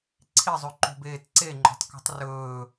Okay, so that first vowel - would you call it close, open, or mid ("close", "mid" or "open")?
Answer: close